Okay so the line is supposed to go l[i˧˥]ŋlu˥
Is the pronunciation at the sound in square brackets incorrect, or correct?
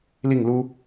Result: incorrect